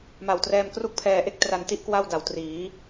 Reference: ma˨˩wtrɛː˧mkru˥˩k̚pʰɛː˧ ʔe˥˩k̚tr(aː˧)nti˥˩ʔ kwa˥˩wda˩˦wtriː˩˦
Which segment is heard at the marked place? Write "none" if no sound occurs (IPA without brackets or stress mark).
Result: a˧